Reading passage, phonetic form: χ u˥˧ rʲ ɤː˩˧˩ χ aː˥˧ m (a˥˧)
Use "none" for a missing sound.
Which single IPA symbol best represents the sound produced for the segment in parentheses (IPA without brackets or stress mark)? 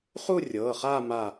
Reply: a˧˩